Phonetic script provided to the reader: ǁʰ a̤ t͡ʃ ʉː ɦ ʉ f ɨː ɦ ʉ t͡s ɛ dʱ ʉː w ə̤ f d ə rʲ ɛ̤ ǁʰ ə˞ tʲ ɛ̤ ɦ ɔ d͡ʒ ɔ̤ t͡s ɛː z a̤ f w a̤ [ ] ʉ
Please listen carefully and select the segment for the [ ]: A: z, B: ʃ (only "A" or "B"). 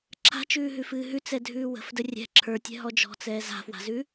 A